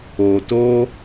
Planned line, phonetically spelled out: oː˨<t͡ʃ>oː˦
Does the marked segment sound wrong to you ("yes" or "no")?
yes